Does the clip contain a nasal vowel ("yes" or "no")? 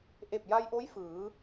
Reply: no